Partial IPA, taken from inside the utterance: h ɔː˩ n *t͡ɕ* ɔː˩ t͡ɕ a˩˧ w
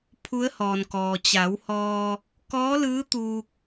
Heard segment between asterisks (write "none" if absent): k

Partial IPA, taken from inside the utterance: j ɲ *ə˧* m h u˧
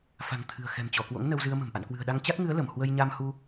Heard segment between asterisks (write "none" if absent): a˧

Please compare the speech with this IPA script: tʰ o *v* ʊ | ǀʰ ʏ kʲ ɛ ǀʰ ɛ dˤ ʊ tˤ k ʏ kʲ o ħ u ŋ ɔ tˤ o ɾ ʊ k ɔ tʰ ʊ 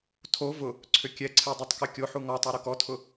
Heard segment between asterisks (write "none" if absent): v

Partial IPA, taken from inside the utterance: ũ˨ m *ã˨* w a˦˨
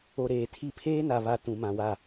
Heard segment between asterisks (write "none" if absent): ã˨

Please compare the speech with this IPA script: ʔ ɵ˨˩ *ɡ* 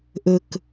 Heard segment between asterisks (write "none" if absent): k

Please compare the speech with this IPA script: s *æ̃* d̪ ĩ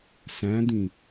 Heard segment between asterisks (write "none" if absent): æ̃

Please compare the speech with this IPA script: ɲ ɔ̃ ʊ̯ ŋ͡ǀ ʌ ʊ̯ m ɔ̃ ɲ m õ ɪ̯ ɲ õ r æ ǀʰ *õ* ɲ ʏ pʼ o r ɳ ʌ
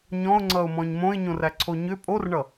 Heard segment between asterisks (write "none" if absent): o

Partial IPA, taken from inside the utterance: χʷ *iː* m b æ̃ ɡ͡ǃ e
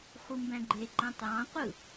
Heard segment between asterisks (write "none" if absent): i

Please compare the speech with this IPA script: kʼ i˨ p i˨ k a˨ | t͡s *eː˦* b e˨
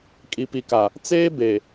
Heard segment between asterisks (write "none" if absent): eː˦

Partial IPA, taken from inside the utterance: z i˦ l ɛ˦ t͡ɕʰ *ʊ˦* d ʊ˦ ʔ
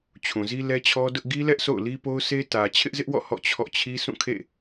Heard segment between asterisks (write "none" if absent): ɔ˦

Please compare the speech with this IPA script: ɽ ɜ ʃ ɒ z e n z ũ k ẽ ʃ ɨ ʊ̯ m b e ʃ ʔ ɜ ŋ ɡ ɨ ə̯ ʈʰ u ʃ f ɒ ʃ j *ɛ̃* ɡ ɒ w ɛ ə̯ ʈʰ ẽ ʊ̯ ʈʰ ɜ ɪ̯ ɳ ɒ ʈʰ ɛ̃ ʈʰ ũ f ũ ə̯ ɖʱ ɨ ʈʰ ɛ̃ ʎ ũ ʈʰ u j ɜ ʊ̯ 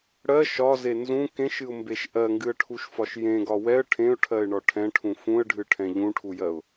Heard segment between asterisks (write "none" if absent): ẽ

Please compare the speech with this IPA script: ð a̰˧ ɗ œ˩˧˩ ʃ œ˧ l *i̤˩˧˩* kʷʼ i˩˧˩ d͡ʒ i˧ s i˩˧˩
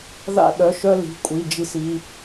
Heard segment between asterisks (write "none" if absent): i̤˩˧˩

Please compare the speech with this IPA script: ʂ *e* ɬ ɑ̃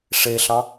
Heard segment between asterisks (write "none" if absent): e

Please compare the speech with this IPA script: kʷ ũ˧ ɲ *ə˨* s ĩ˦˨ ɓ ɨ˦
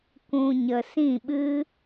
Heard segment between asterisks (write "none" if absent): ə˨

